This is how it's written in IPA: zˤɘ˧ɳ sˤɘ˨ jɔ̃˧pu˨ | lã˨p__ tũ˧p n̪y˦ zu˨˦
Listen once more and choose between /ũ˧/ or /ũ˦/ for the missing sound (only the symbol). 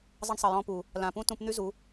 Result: ũ˦